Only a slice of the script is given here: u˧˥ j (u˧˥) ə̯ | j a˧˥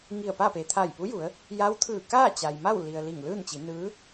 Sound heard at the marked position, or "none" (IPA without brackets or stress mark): u˩˧